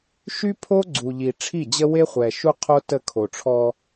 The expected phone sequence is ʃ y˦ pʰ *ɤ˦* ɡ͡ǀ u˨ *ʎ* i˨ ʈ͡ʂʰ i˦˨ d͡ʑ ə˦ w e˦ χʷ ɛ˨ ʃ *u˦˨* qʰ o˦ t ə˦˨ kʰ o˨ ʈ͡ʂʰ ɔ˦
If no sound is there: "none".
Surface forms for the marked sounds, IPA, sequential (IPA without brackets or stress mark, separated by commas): o˦, ʎ, u˦